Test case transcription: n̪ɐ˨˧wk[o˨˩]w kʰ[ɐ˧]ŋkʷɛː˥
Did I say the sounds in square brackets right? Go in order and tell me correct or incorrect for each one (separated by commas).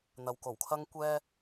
correct, incorrect